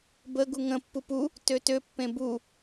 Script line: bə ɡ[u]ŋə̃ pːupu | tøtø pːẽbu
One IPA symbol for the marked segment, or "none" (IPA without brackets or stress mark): u